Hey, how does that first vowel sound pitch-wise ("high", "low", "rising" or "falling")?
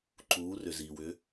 rising